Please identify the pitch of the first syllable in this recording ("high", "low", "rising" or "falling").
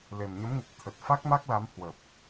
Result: low